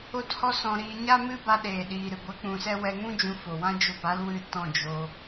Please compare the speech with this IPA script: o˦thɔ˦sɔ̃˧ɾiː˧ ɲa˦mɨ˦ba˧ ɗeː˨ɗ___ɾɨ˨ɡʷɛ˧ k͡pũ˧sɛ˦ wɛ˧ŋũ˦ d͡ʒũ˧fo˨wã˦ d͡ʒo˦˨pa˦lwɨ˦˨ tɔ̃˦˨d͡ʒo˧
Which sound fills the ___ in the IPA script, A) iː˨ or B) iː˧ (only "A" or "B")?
A